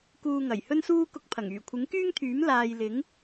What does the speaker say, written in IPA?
kuː˧ŋɐ˨˩jhɵ˥nsuː˥ kʊ˧k̚pʰɐ˨˩ŋ yː˨˩kʷʰɪ˨˥ŋkyː˥ŋt̪ʰyː˨˥m laː˨j lɪ˨˥ŋ

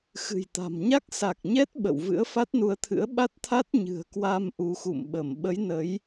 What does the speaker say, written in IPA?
xɨ̤˨˩jt̪a̤˨˩m ɲa˦˥k̚sa˨˩k̚ɲɛ˦˥t̚ ɓə̰˧˨w vɨ̰˧˥ə̯fa˦˥t̚nu˧ə̯t̪ʰɨ̰˧˥ə̯ ɓa˦˥t̚t̪ʰa˦˥t̚ ɲɨ̤˨˩ə̯kwa˧m ʔu˨˦xṵ˧˨mɓə˧˩m ɓə˨˦j nə˨˦j

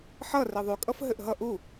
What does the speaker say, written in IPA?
ħʌ reðˤʉkʼʌf ɦɘʔɦʌ ʔu

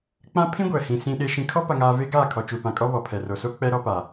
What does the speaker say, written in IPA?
k͡pã˦ pʰĩ˦ɡʷɛ˨hĩ˨ sĩ˨ɗe˨ ʃĩ˨kʰɔ˦ pa˨ŋaː˨ ve˦ɡaː˦˨kʰɔ˨ t͡ʃu˨pã˨kʼɔ˦ βɔ˨pʰɛ˨ro˨so˦ k͡pɛ˦ɾɔ˦ pa˨

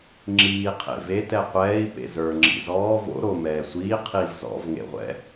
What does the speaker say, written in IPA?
ŋ͡ǁiː qʰḛve tɛqʷɛːi̯ pḛzə˞ ŋ͡ǁḭzɔː vo̰ ɾo mɛːsʷiː qʰiv zɔ̰v ŋḛʁʷɛ̰

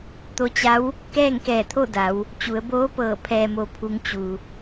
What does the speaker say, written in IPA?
t̪o˧t͡ɕa˧˥w | kɛː˥˨ŋkɛː˧˩t̪ʰo˥˨da˩˧w | t͡ɕu˩˧ə̯boː˧˥pɤː˧˩ pʰɛː˩mo˩pʰu˩˧ŋ t͡ɕu˩

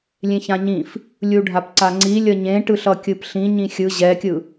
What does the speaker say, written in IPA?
lʲẽçãɲĩf | lʲuɖʱapǀaŋ͡ǀi lʲʌɲẽ ʈɯɬʌkʲɯpɬĩ ɲĩxʲɯ ʑɛkʲɯ

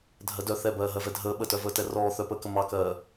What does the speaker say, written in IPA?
dʱɜdœ θɛ bɜːɦɜvɛdʱəː ɓətœvəːtɛ rɔː θœpəːkə mɑkɜː

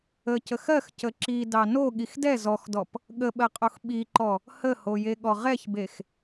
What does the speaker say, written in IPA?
əcəx ɜx cəǁi dɑno ɠixdɛ zɔxdɔp | ɠəɓɜqʼox ɓiǃɔ | həhojeɠɔ ʁɛçbex

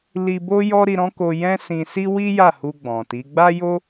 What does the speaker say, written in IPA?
li˧bo˦jɔ˦ ɾi˧ɾɔ̃˦ko˧ jɛ̃˦sĩ˧ si˦wi˦ja˦˨hu˧ ɡ͡bɔ̃˨ti˨˦ ɡ͡ba˦jo˦

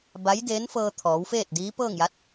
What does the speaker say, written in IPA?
ba˧˥jdeː˧˥nfɤː˧ t̪ʰɔː˩˧wfeː˥˨t̚diː˧˥ pɤː˥˨ŋja˧˥t̚

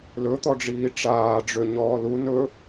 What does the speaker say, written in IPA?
lɵt̪ɔɖ͡ʐiː ʈ͡ʂaːɖ͡ʐø ɲɔːlu nɵ

